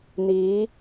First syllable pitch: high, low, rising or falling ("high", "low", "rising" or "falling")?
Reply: rising